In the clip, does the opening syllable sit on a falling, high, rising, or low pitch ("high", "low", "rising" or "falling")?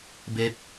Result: rising